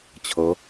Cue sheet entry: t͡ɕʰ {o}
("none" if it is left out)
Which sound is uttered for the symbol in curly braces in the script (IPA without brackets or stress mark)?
ɤ